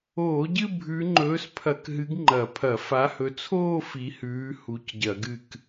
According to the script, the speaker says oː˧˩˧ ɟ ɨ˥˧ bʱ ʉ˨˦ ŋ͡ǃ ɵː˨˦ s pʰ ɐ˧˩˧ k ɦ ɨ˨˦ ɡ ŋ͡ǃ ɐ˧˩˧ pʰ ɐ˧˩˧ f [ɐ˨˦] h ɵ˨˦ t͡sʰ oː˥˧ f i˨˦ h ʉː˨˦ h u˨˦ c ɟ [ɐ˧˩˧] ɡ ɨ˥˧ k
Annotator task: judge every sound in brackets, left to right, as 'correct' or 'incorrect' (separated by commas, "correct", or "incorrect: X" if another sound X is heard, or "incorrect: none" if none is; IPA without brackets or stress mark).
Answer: incorrect: a˨˦, correct